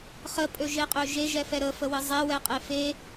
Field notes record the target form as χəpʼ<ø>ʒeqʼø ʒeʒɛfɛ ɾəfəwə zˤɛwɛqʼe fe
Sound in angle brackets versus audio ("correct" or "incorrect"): correct